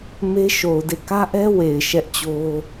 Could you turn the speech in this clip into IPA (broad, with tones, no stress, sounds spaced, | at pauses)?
m e˦ ʃ o˨ ʊ̯ d e˦˨ k ä˦ ʔ ɛ˦ w e˨ ɪ̯ ʃ ɛ˦ ʔ t͡ɕ o˦